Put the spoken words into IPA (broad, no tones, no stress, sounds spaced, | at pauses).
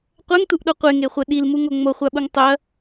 qʷ ɛ ŋ t u ʔ ɗ o qʷ e ŋ e χʷ ɛ ɗ i l m u ŋ o ŋ͡m o χʷ a ɓ u ŋ tˤ ʊ ɐ̯